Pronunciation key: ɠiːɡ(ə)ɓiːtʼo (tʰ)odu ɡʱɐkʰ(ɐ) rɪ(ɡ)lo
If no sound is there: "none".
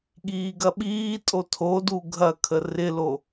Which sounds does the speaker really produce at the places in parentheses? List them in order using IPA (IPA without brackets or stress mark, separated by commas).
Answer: ɐ, tʰ, ə, none